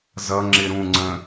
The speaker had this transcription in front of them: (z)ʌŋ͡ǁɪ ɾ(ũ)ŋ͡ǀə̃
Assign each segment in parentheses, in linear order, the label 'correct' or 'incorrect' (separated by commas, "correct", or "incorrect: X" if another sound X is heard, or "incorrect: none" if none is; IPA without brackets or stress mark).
correct, correct